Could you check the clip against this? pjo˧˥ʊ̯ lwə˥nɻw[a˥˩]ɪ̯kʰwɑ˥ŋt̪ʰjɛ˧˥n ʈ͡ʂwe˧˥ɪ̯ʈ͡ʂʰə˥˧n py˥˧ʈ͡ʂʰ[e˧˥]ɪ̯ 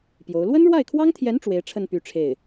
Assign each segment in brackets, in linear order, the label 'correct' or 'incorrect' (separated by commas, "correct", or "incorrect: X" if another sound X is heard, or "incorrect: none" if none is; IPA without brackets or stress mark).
correct, incorrect: e˥˩